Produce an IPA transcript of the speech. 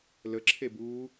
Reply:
ləǁʰebuː

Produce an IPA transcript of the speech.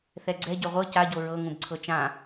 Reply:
θɛɡ͡ǀɛ ɟɵʁʷɤ caɟo ɹɤŋũb ǀʰɤt͡ʃã

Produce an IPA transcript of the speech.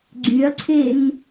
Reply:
ɡ͡ǀyɐ̯ǀʰen

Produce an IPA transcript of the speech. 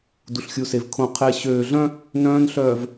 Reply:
du˨ɬxʲu˨se˨v kʰõ˨ qʰe˨ɕøː˨ ɮœ̃˦ | nœ̃ː˦nɬœː˨v

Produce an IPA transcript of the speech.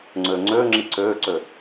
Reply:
ŋ͡ǀøːŋ͡ǀøːŋ͡ǁi ǀøːǀø

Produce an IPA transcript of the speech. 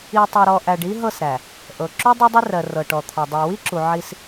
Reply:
i˨tˤɤ˨ɾɔ˨ ʔæ˨ɖi˦ɦɤ˦˨sɾæ˨ | ʔɤ˨ ǁu˦ dˤɤ˦dˤi˦rɜ˨ rɤ˨ʈɔ˨t̪ʰɔ˨ dˤæ˨wi˦ǁu˨ ʕi˦s

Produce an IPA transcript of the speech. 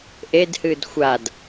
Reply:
ʔedhɨd xʷad

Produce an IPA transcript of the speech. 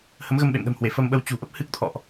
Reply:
hə˨˦mɣə˧mɓḛ˧˨mɗə̤˨˩m hwe˧˩fə˧mɓə˧w t͡ɕṳ˨˩ʔə˦˥p̚ hɨ˦˥k̚t̪ʰɔ̰˧˨ʔ

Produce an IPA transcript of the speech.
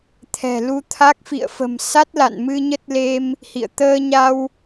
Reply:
t̪ʰɛ̤˨˩lu˧t̪ʰa˦˥k̚ fḭ˧˨ə̯fə̤˨˩msa˦˥t̚ la̰˧˨n mɨ˧ɲə˦˥t̚le˧m | hḭ˧˨ə̯ t̪əː˧ɲa˧w

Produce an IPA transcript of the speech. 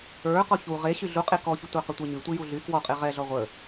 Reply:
ə˞ qɔçu ʁe ɕyɮuqʼe kɔçutʷə˞ qətʷə˞ɲy tʷijuɮy kwɔqʼe ʁɛɮɔ ʁʷə

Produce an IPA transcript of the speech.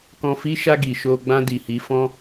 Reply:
kɔ̃˧fi˦ ʃa˧ ɡi˨ʃo˧ ɡ͡bã˧di˨hi˨˦fɔ̃˦

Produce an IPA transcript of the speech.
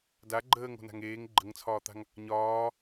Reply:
da ɡ͡ǃəːŋo̤na̤ŋ eːŋ ɡ͡ǃəŋt͡sʰɒːt̪a̤ŋ | ɲɒː

